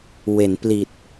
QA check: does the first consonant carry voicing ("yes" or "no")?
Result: yes